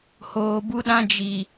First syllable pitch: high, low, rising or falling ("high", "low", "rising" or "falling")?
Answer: low